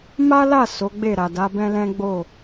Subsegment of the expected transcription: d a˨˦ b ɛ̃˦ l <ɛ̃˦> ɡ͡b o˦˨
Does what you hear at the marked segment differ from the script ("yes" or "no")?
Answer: no